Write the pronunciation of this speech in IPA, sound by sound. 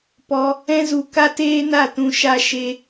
pɔ˧ | ɛ̃˦zu˧ ka˦teː˦na˦˨tũ˧ ʃa˦ʃe˦

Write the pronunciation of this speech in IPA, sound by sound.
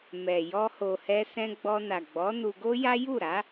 mɛ˨ jɔ˧ho˨hɛ˧ sɛ̃˧ɡ͡bɔ˧na˨ ɡ͡bɔ˨˦nu˧ɡo˦ja˦ ju˦˨ɾa˨˦

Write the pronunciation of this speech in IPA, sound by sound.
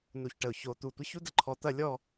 nu˧˩çʈə˧˩ʊ̯ ço˧ t̪u˧˩ tʷə˥çu˥də˥ ǃʰɔ˧t̪ɐ˥˧ lʲɔ˥˧

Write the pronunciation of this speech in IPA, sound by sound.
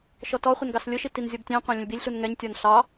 ʃɔtɔχʷɛn ɡɑslʲʊʃi tinzʲɔbtʲæ̃qʷæ̃ lʲə̃lʲbilʲɬun ŋɛɲtʲɒn ɬɑ

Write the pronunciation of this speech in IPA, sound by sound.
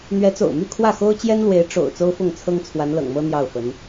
n̪ɥɛ˧˥t͡so̰˨˩ʊ̯my˥˧ kʰwä˥˩xo˥ʊ̯t͡ɕjɛ˥nlwe˧˥ɪ̯ ʈ͡ʂo̰˨˩ʊ̯ t͡so˥ʊ̯fʊ˥˩ŋt͡sʰɤ˥ŋ t͡sʰwa˧˥nlɤ̰˨˩ŋmɤ˥ n̪jɑ˥˩ʊ̯fə˧˥n

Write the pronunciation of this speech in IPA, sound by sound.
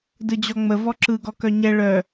dɯd͡ʑɔŋ͡mə vɔǁɯ ɡɔkœɲɛ ɭœ

